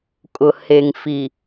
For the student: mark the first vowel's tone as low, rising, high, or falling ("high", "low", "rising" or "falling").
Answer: low